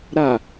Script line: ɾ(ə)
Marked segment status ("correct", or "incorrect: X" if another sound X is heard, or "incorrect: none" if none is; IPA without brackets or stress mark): incorrect: a